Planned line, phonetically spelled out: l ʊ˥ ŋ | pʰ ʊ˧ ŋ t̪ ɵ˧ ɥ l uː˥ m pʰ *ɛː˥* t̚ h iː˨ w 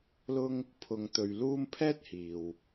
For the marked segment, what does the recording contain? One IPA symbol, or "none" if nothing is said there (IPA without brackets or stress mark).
ɛː˥